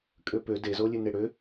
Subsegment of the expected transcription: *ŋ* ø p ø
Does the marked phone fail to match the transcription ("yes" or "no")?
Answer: yes